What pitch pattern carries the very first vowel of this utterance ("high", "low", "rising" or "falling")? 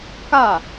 falling